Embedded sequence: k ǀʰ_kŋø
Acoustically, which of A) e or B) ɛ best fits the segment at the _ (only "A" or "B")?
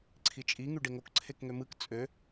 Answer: A